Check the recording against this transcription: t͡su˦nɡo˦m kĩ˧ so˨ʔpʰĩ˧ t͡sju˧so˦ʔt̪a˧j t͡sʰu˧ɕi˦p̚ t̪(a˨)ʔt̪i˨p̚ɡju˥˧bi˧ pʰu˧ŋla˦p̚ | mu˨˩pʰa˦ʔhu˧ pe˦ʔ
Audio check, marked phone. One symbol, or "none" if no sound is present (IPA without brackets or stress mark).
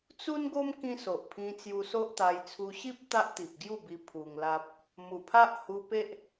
a˦